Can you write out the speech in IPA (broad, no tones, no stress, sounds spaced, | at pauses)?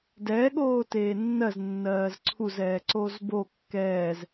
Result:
d ɛ ɠ oː t eː nː ɜ z nː ɜː z ǀʰ u z ɛː ǀ o z b o kː ɛː z